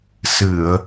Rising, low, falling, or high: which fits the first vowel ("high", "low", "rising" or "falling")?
low